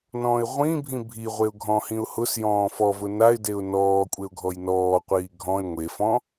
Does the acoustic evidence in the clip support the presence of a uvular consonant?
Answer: yes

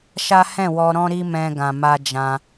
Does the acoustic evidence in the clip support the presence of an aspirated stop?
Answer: no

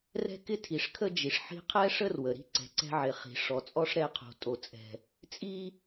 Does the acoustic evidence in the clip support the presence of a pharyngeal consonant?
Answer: yes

